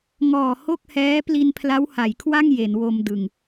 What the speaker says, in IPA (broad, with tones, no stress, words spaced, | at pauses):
ŋɔː˨˩ho˥˩k̚hɛː˦˥ pli˧npʰla˦˥wha˩˦jkʰwa˥˩ŋ je˩˦nwo˧mdɯ˨˩ŋ